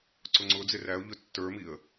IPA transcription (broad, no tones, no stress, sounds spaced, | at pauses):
ǀ ʊ ŋ͡ǀ ʊ d͡z ɪ r æ ʊ̯ ʎ ʊ tː ə˞ m i ə̯